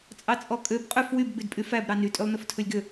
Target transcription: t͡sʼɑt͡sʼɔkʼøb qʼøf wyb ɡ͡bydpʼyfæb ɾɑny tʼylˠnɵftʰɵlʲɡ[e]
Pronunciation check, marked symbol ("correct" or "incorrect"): incorrect